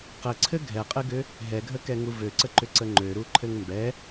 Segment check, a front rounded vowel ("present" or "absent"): present